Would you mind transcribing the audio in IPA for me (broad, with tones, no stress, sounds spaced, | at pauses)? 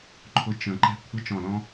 ǃʰ ʊ˧ t͡ʃ ə̃˨˩ ǃ ɛ̤˧ kʷʰ ə˧˥ t͡ʃ ɔ̃˨˩ l ɔ̃˧